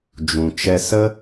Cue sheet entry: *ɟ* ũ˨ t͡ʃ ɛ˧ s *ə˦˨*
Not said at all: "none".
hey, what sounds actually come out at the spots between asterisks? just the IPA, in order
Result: d͡ʒ, ə˦

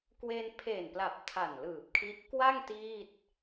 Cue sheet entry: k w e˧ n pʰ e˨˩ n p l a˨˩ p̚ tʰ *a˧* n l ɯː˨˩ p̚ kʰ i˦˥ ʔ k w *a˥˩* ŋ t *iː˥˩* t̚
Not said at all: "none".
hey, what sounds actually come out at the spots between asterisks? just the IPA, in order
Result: a˨˩, a˥˩, iː˥˩

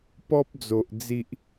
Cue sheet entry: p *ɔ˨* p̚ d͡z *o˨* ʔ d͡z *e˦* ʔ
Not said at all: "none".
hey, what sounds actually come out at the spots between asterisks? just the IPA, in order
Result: ɔ˦, o˨, i˦

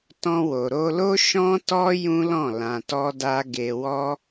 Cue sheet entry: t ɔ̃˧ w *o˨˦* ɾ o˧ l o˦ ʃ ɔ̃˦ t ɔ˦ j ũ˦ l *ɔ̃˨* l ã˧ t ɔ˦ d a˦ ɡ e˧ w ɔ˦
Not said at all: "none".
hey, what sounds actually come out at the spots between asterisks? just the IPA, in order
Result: o˨, ɔ̃˦˨

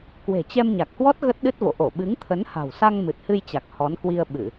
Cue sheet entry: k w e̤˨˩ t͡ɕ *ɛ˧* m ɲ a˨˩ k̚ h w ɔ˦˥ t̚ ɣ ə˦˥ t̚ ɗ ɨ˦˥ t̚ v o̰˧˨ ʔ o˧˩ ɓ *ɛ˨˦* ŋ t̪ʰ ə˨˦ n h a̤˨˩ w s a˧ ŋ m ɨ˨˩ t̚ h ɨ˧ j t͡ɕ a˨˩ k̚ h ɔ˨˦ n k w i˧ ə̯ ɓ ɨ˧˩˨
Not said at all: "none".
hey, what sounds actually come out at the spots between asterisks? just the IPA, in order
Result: ɛ˧, ɨ˨˦

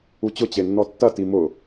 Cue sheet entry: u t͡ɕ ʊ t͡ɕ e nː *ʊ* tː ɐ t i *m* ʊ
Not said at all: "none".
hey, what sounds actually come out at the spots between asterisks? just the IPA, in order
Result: ɔ, m

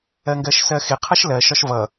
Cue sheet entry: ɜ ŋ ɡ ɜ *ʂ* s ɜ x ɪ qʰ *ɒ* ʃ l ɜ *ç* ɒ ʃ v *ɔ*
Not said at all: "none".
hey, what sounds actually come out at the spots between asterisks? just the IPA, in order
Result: ʃ, ʌ, ʃ, ʌ

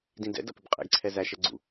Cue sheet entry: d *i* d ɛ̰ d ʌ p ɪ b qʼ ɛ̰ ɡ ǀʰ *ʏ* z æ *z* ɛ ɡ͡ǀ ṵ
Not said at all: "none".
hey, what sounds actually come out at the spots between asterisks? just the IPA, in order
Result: ĩ, ɛ, ʃ

